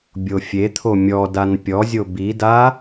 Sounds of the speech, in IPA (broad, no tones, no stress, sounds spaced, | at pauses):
bʲ o fʲ e t̪ʰ o mʲ ɔ d a n pʲ ɔ zʲ o b i d a